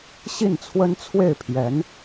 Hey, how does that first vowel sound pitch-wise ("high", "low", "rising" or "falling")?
falling